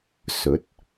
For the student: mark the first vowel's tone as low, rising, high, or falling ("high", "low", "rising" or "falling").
rising